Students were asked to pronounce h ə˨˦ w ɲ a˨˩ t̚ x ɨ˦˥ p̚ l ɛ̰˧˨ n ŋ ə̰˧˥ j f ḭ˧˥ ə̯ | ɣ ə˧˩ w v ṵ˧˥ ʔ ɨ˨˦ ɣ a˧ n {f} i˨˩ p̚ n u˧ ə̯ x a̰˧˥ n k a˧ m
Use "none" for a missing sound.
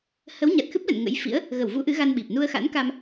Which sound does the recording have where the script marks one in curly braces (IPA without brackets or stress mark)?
ɓ